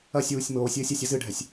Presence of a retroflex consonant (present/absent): present